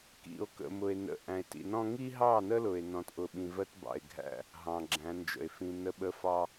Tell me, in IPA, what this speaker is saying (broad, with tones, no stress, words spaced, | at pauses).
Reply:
kḭ˨o̯kə̰˨mʊ˨e̯ nə̰˨ ʔæ̃˨e̯tḭ˨nɔ̃˦ ŋi˦ɦɑ˦˨nə˦lʊ˨e̯ nɔ̃˦tʔʊ˦˨ɓĩ˦ vɜ˦tbɑ̰˨e̯ɡʱæ̰˦˨ | ɦɑ̃˨ɡ͡ǁæ̃˨˦nd͡ʒə̰˨e̯ fĩ˨ nə˦ɓə˦ fɑ˦